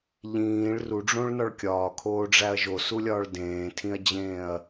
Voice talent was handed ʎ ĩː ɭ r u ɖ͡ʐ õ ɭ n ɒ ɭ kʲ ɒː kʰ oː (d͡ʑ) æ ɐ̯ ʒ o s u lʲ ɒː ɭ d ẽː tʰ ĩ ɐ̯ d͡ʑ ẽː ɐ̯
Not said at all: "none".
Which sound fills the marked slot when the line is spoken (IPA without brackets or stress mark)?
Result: ɖ͡ʐ